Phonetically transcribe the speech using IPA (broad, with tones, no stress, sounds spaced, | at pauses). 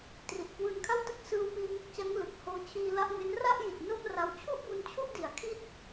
t r i˨˩ ʔ k w ɯː˧ n kʰ a˥˩ w t ɯ˥˩ k̚ s ɯː˧ w p iː˧ ŋ o˥˩ k̚ t͡ɕ a˦˥ ŋ l ɯ˨˩ k̚ h oː˦˥ t͡ɕʰ iː˧ l a˦˥ ʔ ŋ e˦˥ n r a˥˩ ʔ j i˨˩ t̚ n o˥˩ m r a˧ w t͡ɕʰ u˥˩ ʔ b u˧ n t͡ɕʰ u˥˩ ʔ d i˨˩ a̯ kʰ i˥˩ t̚